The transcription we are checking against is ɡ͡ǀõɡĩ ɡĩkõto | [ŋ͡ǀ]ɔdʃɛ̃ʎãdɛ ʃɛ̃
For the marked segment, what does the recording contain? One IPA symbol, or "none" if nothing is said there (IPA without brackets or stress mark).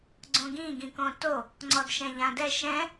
ŋ͡ǀ